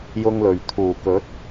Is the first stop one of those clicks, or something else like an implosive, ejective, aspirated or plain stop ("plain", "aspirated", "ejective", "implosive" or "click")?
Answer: aspirated